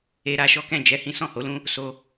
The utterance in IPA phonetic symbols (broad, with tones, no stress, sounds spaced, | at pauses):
e˧ ɾ a˧ ʃ ɔ˦ k ɛ̃˦˨ d͡ʒ ɛ˧ h ĩ˦ s ɔ̃˦˨ h o˨˦ l ũ˦ | s o˧